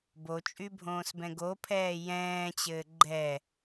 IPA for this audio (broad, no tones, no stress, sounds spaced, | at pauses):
b o t͡ʃʼ y bʱ õː s b ɛ̃ ɡ o pʰ ɛː j ɛ̃ː t͡ɕ ɘː ɡ͡ǃ ɛ